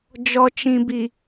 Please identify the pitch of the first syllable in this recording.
low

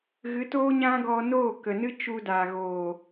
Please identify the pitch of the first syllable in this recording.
rising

